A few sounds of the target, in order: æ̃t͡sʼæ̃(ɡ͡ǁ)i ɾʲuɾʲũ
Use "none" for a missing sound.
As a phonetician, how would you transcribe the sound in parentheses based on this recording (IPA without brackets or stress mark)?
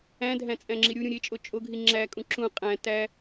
ŋ͡ǁ